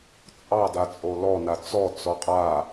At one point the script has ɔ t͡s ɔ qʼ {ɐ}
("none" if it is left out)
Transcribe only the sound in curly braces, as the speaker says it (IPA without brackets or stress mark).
a